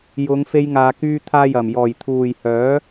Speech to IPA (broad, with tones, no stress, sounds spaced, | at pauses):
j ʊ˨˧ ŋ f e˧ j ŋ aː˨ k yː˧ t̪ʰ aː˧ j ɐ˨˩ m j ɔː˨˩ j t̪ʰ uː˨˩ j h œː˨˥